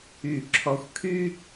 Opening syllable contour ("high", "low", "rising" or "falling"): falling